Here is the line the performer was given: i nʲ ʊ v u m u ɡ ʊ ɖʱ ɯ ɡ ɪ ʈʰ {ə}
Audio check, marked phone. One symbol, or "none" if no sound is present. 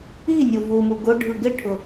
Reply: ʊ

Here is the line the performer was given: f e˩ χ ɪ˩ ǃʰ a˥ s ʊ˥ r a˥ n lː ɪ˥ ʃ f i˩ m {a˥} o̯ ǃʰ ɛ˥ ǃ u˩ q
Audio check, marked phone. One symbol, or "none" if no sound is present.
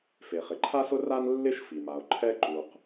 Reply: a˩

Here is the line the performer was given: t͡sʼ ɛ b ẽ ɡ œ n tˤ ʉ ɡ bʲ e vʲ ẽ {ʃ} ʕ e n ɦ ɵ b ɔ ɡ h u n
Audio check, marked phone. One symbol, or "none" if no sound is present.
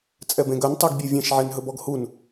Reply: ʃ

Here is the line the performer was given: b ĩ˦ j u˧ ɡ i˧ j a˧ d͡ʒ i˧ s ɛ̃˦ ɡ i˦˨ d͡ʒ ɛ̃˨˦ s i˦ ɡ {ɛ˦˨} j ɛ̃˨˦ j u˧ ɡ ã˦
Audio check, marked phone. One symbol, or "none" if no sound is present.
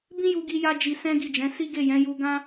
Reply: e˦˨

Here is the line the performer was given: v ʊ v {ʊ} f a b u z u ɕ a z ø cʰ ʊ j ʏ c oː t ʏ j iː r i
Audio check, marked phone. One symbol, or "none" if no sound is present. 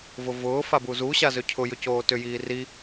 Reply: ʊː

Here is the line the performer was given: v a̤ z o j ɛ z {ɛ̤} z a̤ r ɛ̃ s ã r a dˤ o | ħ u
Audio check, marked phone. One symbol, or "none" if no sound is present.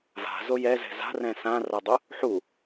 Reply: ɛ̤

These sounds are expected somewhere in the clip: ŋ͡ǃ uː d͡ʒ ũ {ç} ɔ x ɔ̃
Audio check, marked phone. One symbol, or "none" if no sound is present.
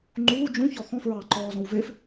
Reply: ç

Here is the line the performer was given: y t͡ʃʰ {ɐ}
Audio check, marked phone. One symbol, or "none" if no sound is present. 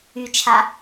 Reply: a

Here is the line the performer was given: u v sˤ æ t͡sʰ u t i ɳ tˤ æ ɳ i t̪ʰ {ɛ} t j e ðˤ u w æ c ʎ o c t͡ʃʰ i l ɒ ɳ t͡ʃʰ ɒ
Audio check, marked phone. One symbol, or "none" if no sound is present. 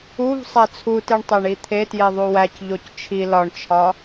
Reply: e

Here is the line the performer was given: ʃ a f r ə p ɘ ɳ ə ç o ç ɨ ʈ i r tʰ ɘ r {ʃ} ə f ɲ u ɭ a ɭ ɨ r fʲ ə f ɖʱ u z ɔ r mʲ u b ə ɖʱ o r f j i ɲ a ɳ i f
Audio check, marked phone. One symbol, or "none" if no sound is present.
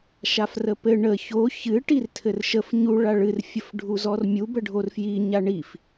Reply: ʃ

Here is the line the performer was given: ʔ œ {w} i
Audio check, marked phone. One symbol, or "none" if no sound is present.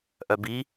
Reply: b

